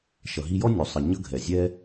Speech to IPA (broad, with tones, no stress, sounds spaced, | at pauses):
ʃ ʌ˨ ɦ i˧ j ɔ˦ nʲ u˨ sˤ ə˨ ɲ ʌ˧ ɡʱ ɛ˨ zʲ ɛ˧